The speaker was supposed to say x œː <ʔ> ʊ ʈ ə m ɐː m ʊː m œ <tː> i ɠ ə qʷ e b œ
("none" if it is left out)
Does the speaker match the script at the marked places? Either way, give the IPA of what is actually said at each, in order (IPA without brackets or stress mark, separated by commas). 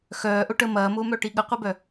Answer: ʔ, ʈ